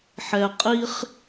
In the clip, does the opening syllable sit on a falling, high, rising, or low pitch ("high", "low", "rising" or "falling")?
low